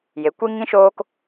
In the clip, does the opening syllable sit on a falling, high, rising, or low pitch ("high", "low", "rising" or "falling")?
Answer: rising